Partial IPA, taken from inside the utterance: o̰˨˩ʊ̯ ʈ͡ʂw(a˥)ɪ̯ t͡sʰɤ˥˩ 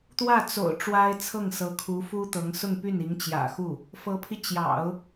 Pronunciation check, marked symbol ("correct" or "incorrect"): correct